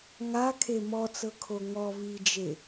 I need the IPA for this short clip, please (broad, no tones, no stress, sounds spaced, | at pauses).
ŋ a kʰ e m ɔ t͡s ɤ kʰ o ŋ ɔ v i d͡ʒ e